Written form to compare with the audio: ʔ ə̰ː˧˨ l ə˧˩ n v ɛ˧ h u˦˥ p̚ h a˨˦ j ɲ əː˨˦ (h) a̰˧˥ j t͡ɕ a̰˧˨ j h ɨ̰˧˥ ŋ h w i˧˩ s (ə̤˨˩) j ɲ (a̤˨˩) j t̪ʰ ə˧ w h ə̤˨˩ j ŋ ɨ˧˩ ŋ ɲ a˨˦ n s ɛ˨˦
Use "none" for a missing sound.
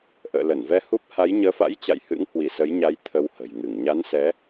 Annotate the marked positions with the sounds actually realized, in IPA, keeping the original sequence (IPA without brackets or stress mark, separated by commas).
f, ə˨˦, a˨˦